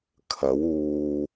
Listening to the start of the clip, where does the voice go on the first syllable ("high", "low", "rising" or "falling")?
rising